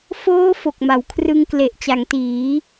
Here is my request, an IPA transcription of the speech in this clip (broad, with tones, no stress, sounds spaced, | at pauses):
f oː˦˥ f o˨˩ k̚ m a˩˦ w kʰ r ɯ˧ ŋ k l e˨˩ ʔ t͡ɕ a˩˦ ŋ t iː˩˦